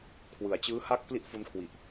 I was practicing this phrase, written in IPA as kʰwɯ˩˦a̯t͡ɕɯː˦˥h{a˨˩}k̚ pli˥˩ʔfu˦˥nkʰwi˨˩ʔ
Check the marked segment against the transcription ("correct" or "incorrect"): incorrect